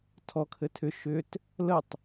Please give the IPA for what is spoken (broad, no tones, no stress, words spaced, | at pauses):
tʰɔkʰɘ tʰʏ ʃʏt | lətˤ